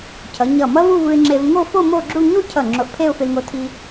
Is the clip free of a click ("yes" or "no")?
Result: no